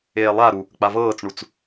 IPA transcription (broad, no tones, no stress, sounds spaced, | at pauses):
eː lˠ a ɾ u | k͡p a v ɤː t͡s ɳ u t͡s